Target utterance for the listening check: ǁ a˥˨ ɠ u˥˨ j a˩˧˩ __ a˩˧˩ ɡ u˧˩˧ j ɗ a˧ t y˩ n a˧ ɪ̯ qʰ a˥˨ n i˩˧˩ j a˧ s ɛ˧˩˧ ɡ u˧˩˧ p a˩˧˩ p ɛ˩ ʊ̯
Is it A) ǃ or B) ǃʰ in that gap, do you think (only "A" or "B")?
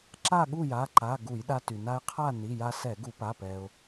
A